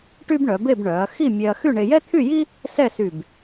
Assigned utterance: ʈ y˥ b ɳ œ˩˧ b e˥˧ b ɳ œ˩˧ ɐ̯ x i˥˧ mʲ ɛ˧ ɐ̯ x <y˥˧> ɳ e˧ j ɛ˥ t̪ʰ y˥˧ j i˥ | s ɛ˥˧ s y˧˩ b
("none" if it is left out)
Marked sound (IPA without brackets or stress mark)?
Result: y˥˧